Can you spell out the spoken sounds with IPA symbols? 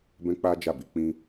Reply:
bɛ̃˦k͡pa˦d͡ʒa˦˨bi˧ k͡pĩ˦

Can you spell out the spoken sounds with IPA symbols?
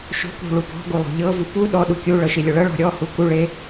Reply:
ʃo̤kṳ ɭupɔ̤ɡu lˠo̤ʎɤvu pu ɗɔ ɗukʲuɭɤ ʃilʲoɭɤɭɔ̤ ɾʲɔhu kuɭe

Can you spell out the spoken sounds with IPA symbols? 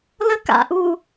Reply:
lə ka̰ʔuː

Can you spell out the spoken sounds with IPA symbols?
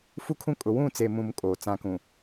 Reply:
fu˦kʰũ˦kʼʊ˨ wũ˦˨t͡se˨mũ˨m kʼoː˨t͡sã˦kũ˨

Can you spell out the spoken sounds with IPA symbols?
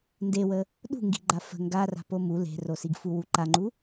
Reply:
ndewə | ɗṳŋɡi̤ɡ͡ǃa fə̤ ŋɡara̤po mu le̤rosiɡ fuwuǃaŋ͡ǃu

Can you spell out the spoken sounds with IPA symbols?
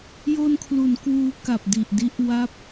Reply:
jo˧nkʰlu˩˦n kwuː˦˥ka˨˩p̚di˨˩ʔdi˦˥ʔ wa˦˥p̚

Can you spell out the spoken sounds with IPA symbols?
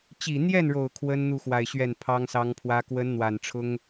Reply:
t͡ɕi˨˩n̪jɛ˥˩nɻo˨˩ʊ̯ kʰwə˥nn̪u˥˩xwa˨˩ɪ̯ ɕɥɛ˥˩npʰɑ˥ŋsɑ˥ŋpʰwä˥ kwə˧˥nn̪wa˨˩nʈ͡ʂʰʊ˥ŋ

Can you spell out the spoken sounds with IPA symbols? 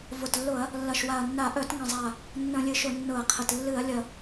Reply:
vʊ˨˩tlːʊ˧˩˧ɐ̯ | lːɐ˨˩ʃwa˨˩ɐ̯nːa˧˩˧ ʔœ˧˩˧tŋə̃˨˩zˤa˨˩ | nːə̃˧˩˧lʲɨ˨˩ʃʊ˧˩˧ nːʊ˧˩˧ɐ̯qʰə˨˩t lːɨ˧˩˧ɐ̯lʲɐ˨˩

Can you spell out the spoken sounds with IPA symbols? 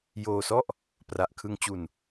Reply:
joː˧sɔ˥˩ʔ | pra˨˩ʔkʰɯ˧ŋt͡ɕu˧n

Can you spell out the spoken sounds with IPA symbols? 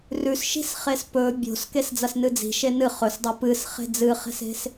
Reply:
rʉsʃi̤sχes pɵ bʲo̤s kesd͡zɐsnɨd͡zi̤ ʃenɨ χɵsdˤo pɨs χe̤d͡zɨχe̤se̤s

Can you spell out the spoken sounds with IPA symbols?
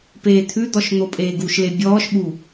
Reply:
peːt̪ʰʉd̪ɔʃ n̪opʼeːɡuʃle bʲɔːʃɓu

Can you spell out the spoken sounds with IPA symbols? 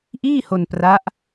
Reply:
ʔiː˥˩ho˧n pra˦˥ʔ

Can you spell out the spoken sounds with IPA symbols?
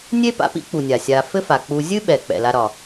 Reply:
nʲe˦pa̰˨pḭ˦k͡pu˩ nʲa˩sʲa˨ fɘ˦fa˩k͡pu˨ zʲɨ˦ɓɛ˩ k͡pɛ̰˩ la˨ɾɒ˩

